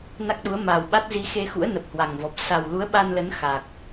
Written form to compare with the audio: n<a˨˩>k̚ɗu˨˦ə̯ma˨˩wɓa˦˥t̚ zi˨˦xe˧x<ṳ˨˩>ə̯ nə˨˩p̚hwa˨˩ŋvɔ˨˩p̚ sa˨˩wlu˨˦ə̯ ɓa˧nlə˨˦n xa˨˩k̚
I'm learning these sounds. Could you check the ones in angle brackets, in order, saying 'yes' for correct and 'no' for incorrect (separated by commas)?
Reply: no, no